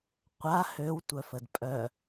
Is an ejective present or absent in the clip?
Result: present